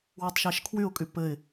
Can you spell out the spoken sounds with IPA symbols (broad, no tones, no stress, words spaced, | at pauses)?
wɔtˤʃæʃkʰwyʊ̯kʼy pɘɪ̯